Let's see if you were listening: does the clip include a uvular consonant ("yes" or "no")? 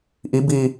no